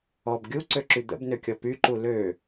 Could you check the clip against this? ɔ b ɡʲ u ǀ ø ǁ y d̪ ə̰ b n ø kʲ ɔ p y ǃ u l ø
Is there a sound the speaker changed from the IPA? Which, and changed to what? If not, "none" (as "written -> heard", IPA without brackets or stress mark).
none